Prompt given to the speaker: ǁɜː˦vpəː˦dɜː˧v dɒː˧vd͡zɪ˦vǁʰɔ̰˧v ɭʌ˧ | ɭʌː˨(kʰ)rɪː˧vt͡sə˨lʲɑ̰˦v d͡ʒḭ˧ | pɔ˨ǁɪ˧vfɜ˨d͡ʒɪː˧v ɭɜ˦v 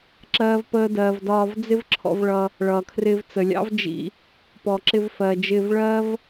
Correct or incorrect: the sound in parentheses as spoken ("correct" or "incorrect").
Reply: correct